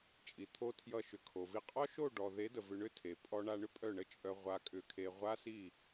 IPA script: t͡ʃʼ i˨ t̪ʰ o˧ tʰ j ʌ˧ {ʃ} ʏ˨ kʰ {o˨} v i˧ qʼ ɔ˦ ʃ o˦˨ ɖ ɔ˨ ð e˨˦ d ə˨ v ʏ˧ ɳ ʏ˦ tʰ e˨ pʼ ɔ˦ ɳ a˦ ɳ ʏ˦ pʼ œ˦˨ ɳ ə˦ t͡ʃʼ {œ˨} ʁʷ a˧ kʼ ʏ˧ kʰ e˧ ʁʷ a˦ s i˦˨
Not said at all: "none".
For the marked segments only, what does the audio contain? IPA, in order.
ʃ, o˨, œ˧

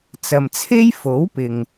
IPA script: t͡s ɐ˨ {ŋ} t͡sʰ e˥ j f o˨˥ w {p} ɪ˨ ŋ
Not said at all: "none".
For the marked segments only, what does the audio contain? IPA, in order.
m, p

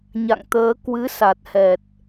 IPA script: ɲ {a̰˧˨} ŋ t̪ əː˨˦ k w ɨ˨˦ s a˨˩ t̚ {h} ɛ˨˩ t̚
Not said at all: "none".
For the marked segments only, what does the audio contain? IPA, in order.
a̰˧˨, h

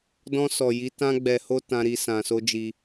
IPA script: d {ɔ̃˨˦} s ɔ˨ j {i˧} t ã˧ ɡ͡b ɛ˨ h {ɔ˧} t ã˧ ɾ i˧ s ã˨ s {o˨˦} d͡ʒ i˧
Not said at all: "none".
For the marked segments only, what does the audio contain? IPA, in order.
ɔ̃˧, i˨˦, o˧, o˧

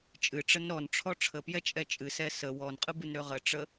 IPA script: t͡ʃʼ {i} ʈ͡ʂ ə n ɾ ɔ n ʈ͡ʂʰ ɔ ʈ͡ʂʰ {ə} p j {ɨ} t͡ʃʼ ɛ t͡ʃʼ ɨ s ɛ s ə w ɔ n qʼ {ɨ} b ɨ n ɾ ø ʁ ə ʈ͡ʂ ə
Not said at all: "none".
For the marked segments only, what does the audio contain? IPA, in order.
ɨ, ə, ɛ, ɨ

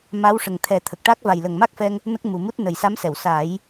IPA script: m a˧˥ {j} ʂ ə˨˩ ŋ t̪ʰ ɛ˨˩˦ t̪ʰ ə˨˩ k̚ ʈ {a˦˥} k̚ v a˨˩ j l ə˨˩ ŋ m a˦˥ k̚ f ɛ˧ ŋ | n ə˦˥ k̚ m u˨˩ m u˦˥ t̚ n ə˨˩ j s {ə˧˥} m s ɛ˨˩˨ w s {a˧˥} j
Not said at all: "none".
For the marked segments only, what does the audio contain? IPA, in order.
w, a˦˥, a˧˥, a˨˩˦

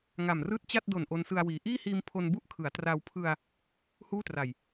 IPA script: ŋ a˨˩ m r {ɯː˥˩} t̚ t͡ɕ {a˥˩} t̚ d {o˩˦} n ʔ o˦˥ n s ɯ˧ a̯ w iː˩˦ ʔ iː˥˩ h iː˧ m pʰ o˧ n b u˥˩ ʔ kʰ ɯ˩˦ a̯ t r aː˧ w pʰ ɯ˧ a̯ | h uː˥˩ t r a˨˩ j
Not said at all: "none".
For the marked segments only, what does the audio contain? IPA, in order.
ɯː˥˩, a˥˩, o˨˩

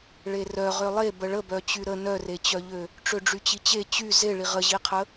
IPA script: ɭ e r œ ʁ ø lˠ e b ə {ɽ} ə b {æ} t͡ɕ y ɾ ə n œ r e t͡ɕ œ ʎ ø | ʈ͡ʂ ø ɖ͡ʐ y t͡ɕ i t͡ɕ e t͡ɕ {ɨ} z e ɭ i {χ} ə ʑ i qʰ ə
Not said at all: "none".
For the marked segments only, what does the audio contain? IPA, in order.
ɭ, œ, y, ʁ

